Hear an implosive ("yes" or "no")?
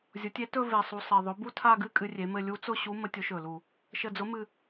no